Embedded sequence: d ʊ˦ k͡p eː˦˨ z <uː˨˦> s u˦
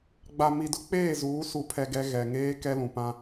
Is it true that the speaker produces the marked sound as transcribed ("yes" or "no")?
yes